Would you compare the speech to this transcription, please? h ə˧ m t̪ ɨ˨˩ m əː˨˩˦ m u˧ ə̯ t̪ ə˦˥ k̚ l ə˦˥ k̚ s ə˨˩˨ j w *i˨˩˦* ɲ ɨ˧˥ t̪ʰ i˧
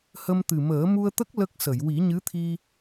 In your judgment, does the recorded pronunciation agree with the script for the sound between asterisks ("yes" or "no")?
yes